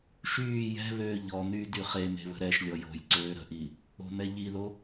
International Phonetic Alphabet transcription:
ʃ yː j ɛ̤ β øː ʎ ɔ n̪ yː d y χ e m e̤ β ə̤ ɾ ɛ ʃ lʲ ɔ j o̤ j ǀ øː ɾ ə̤ ʔ iː | o̤ n̪ ɛ ʎ i ð o

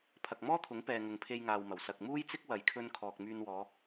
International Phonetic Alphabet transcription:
pʰ ɐ˨ k̚ m ɔː˥ t̪ʰ ʊ˨˥ ŋ p ɛː˨ ŋ ʊ˨ ŋ pʰ e˧ j ŋ aː˨ w m ɐ˨˩ w s ɐ˨ k̚ m uː˥ j t͡s ɪ˥ k̚ w ɐ˨ j kʰ ɵ˧ n kʰ ɔː˨ k̚ m yː˧ n w ɔː˨˧

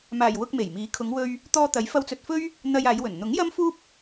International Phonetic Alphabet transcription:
m aː˨˩ j w ʊ˧ k̚ m e˨˩ j m iː˨˥ kʰ ʊ˨˧ ŋ w ɵ˧ ɥ | t̪ ɔː˧ t̪ ɐ˨˥ j f ɐ˧ w t͡s ɵ˨ t̚ f ɵ˥ ɥ | n̪ ɐ˧ j aː˨˧ j w ɵ˨˩ n n̪ ʊ˨˥ ŋ j ɐ˥ m f uː˥ p̚

